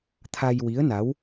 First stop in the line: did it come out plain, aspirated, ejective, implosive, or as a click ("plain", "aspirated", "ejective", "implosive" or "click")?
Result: aspirated